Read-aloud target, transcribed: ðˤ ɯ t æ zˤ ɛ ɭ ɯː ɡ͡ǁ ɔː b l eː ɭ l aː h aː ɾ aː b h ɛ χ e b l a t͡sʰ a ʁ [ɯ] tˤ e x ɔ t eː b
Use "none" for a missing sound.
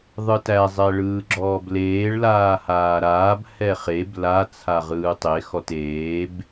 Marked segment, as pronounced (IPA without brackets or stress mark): ɯː